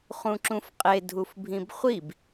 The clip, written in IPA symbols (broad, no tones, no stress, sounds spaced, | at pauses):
χ ũ ǁ ũ f qʼ e dʱ u f bʱ ĩ b χʷ i b